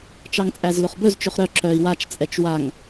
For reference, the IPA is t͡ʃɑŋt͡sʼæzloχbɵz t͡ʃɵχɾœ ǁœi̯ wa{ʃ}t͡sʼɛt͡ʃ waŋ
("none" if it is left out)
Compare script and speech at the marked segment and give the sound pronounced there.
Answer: t͡ʃ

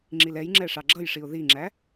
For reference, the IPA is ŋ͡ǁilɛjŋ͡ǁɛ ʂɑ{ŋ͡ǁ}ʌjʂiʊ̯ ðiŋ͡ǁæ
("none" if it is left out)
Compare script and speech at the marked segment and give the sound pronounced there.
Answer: ɡ͡ǁ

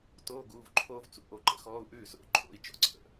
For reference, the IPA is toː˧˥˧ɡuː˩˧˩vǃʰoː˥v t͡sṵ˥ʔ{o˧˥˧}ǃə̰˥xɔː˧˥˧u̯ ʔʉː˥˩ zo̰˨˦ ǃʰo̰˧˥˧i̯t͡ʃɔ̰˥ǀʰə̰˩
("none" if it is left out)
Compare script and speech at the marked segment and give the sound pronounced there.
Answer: o˨˦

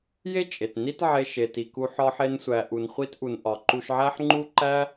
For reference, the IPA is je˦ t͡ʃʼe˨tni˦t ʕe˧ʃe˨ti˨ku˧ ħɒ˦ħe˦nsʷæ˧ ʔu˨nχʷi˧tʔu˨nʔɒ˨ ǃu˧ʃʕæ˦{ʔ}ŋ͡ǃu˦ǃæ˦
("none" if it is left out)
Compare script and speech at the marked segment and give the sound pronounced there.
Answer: ħ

